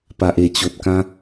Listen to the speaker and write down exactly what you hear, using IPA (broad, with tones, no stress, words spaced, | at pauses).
pa˨ʔe˨˩t͡ɕo˨t̚kã˦